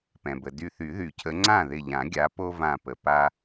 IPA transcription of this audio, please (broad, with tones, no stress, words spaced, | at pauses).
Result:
pɛ̃˩bə˩ dy˧˩θy˨˩˦ðy˨˩˦cʰə˨˦ ŋ͡ǀã˥˩ðɪ˧˩ʎã˨˩˦ɡʲa˨˦ po˦vã˧˩pə˩ pa˦